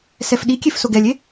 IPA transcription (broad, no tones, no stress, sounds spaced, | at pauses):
s ɛ f ɗ i kʲ e f s o ɡ ɛ lʲ e